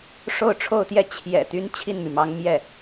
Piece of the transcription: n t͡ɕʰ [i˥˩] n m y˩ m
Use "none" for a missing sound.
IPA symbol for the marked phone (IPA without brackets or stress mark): i˥˩